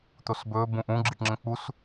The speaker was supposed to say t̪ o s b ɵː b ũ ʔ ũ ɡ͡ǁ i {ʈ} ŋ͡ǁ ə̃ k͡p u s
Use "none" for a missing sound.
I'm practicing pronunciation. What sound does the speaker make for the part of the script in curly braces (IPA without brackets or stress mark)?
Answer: ʈ